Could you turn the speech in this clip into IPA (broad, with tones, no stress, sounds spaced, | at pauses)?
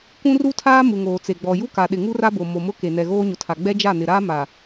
kʷ ũ˦ r u˦ tʰ aː˦ m u˨ ŋ oː˨ t͡s e˨ ɡ͡b ɔ˨ j u˦ k a˨ ɗ ɪ˨ ŋ u˦ r a˦ b o˨ m o˨ m ʊ˦ k e˨ n ɛ˨ ɣ oː˦ ɲ ʊ˨ tʰ a˨ ɡ͡b ɛ˦ d͡ʒ a˦˨ n ɪ˨ ɾ aː˦ m a˨